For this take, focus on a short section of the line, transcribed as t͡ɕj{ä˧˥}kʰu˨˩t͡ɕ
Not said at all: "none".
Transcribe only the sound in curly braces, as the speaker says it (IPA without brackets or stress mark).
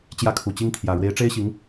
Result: ä˥˩